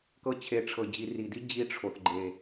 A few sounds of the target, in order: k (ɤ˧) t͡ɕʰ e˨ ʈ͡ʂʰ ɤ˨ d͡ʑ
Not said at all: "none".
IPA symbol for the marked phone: ɤ˧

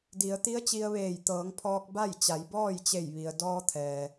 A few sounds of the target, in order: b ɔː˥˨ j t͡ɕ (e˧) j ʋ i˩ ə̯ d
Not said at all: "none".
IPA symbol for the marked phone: e˧˩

